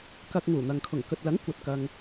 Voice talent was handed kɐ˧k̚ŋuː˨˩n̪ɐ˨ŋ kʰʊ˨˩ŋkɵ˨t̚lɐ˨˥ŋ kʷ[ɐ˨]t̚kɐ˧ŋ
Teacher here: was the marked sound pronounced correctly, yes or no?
yes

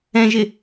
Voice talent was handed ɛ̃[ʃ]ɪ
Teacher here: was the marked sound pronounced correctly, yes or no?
no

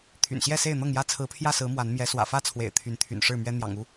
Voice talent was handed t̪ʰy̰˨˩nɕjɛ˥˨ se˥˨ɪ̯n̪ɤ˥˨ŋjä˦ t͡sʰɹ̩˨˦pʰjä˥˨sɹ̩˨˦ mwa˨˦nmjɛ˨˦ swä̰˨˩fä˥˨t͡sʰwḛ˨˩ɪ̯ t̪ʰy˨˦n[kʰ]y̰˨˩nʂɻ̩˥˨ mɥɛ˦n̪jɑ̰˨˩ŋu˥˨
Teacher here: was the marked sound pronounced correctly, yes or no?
no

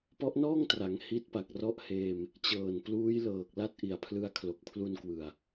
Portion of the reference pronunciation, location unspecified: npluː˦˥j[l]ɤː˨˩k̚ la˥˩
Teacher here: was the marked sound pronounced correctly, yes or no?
yes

